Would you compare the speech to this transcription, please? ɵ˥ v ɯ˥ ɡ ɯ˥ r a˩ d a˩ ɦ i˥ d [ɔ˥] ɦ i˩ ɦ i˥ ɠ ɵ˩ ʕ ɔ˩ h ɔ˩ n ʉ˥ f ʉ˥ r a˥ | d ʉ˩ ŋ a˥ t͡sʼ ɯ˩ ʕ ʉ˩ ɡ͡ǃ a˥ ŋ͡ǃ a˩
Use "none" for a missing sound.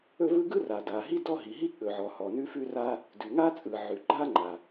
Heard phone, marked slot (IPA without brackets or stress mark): ɔ˥